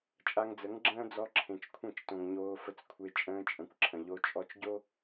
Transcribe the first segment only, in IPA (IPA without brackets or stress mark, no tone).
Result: t͡ʃʼ